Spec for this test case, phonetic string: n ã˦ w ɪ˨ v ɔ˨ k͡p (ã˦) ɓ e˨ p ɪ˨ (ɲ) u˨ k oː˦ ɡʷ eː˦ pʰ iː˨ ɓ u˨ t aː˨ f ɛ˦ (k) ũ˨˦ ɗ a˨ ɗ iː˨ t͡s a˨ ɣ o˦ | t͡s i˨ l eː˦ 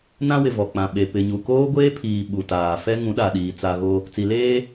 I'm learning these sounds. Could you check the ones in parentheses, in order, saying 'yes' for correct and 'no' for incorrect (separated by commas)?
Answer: no, yes, no